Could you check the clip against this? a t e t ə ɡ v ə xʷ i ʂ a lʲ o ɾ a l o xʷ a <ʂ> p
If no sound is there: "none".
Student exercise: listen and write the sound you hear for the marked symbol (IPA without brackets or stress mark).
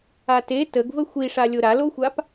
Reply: none